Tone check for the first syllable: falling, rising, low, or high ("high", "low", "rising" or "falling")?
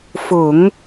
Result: low